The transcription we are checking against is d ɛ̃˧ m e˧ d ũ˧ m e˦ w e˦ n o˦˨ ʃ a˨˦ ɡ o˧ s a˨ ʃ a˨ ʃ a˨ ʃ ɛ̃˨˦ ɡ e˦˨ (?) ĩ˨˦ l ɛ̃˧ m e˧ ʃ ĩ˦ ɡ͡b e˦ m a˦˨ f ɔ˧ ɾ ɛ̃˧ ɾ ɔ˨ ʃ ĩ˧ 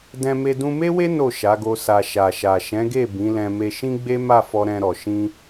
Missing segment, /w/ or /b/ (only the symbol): b